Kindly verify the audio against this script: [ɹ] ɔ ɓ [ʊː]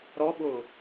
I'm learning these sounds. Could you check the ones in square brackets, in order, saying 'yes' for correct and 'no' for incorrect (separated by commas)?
no, yes